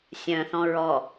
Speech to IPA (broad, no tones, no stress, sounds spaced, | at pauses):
sʲ œ̃ θ ɔ̃ ɹ ɔ